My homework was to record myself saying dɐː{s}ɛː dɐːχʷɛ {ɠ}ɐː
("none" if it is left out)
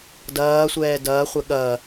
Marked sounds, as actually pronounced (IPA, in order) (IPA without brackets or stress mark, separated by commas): sʷ, ɠ